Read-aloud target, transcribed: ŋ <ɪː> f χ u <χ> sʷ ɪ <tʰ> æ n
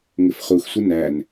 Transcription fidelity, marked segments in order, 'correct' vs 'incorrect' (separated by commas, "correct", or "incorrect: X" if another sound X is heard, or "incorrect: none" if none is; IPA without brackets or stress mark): incorrect: ɪ, incorrect: x, incorrect: n